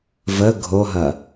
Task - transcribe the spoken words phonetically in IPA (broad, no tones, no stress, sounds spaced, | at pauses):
v ə ɡʱ o ɦ ɐ